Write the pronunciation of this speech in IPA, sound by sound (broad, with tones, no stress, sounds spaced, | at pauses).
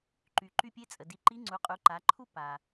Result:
ǃ y˩ ǃ y˧ pʲ e˧˥ t͡sʼ ə˩ d i˩˧ ǃ i˧˥ ŋ͡ǀ u˩˧ qʼ u˩˧ ǃ a˩˧ ǃʰ u˥ p a˩